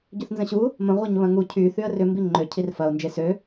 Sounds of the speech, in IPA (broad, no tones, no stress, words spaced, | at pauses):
ɟʏθnzə̃ɕu | mə̃ ʁʷɛɲβɐ̃ŋu cʰy θyə̯rʏ mbiŋ͡ǃø cʰirfɐʊ̯ nd͡ʒesø